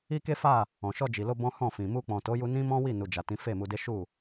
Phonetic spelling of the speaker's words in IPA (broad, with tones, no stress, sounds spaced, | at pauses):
i˦ k e˦ f a˦˨ | ɔ̃˨ ʃ ɔ˧ d͡ʒ i˨ l o˧ b ɔ̃˦ h ɔ̃˦˨ f ĩ˨ m u˧ k͡p ɔ̃˨ t o˨˦ j u˧ n ĩ˦ m ɔ̃˦ w i˦˨ n u˨ d͡ʒ a˨ t ĩ˨˦ f e˦˨ m u˧ d e˦ ʃ u˦˨